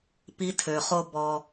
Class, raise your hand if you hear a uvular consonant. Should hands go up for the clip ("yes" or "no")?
yes